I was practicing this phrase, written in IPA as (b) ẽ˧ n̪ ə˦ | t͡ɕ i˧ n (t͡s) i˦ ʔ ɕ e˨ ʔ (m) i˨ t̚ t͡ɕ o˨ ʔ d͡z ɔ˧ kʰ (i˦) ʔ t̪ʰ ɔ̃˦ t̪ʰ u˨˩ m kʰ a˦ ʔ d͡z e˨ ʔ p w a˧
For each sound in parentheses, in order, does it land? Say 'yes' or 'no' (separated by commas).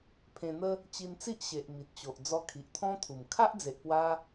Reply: no, yes, yes, no